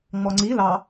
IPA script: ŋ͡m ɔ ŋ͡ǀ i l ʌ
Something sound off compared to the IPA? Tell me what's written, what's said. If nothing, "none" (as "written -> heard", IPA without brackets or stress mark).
ʌ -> ɑ